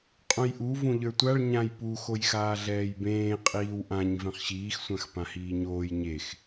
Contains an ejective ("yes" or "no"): yes